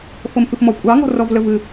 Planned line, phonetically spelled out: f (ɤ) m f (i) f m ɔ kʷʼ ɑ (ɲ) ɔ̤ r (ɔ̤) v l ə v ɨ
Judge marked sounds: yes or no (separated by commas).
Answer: yes, no, no, no